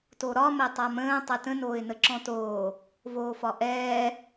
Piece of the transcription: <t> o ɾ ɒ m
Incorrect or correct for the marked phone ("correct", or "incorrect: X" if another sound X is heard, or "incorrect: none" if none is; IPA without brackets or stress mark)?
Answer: correct